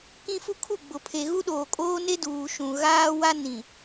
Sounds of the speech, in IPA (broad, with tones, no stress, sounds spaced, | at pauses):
k ĩ˦ f u˦ kʰ u˦˨ ɡ͡b ʊ˨ pʰ e˨ ɣ u˦ ɗ oː˨ kʼ oː˦ n e˦ d uː˨ ʃ ũ˨ ɣ aː˦ w a˦ n ĩ˨